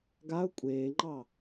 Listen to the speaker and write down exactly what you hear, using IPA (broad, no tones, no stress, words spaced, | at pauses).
ɡaʊ̯ kʷʼeːŋ͡ǃɑ